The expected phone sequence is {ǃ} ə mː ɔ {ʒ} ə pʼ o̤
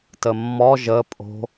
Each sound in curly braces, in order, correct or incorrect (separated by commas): incorrect, correct